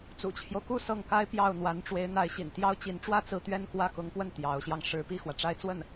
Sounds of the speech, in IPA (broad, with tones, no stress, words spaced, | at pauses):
t͡sṵ˨˩t͡ɕʰjo˦ʊ̯ku˥˧ sɤ˥˩ŋka˥ɪ̯ pjɑ˥˩ʊ̯ n̪wa˧˥nʈ͡ʂwe˧˥ɪ̯n̪a˧˥ɪ̯ ɕḭ˨˩nt̪jɑ˥ʊ̯t͡ɕi˧˥nʈ͡ʂwä˥ t͡sɹ̩˥˧ t̪ɥɛ˥˧nkwä˥˩kʊ˧˥ŋpwə˥˩n t̪jɑ˧˥ʊ̯ɕjɑ˧ŋ ʂɻ̩˧˥pi˥˩xwä˩ ʈ͡ʂa˥˧ɪ̯t͡swə˥˩n